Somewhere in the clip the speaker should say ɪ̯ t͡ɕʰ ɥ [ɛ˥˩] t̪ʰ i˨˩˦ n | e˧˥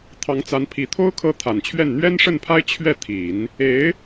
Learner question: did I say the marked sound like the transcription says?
yes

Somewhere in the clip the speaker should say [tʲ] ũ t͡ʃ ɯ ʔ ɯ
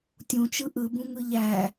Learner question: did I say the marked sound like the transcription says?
yes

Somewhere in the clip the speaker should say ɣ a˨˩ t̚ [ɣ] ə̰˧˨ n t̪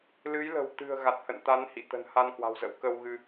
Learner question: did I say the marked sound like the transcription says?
no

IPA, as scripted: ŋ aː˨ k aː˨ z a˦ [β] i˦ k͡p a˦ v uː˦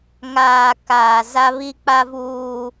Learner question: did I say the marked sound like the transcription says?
yes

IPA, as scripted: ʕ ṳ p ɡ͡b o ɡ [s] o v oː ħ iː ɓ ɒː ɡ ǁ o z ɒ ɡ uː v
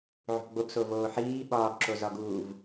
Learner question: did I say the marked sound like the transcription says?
yes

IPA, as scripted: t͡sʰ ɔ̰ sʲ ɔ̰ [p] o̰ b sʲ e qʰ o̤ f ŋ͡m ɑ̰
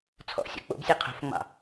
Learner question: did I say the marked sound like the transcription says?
no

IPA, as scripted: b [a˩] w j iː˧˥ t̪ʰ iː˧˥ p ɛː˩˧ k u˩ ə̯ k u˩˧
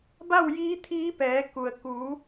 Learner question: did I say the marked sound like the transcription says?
no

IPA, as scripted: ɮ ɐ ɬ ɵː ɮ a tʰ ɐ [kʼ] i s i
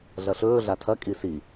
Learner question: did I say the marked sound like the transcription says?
yes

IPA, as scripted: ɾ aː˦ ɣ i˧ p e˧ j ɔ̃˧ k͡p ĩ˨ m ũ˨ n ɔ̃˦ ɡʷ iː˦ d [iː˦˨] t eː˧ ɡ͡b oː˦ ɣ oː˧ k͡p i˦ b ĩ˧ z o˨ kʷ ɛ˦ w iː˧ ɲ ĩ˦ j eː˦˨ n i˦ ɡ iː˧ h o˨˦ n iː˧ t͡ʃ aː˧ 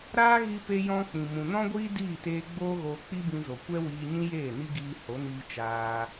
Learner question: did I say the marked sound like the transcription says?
yes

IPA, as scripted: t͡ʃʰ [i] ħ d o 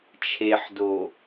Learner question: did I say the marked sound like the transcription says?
no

